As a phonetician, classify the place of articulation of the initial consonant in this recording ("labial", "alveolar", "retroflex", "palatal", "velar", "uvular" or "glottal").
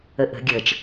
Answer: glottal